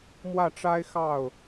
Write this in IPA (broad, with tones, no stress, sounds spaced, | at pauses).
m w ä˥˩ ʈ͡ʂ a˥ ɪ̯ x ɑ˥˩ ʊ̯